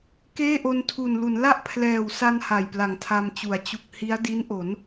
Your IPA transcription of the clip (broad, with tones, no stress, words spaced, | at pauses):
keː˥˩ʔo˧ntʰu˨˩nlu˩˦n la˥˩ʔpʰlɛː˨˩wsa˧n ha˨˩jpla˩˦ŋtʰa˧mt͡ɕu˨˩a̯ t͡ɕu˨˩k̚hi˦˥a̯ di˦˥nʔo˩˦n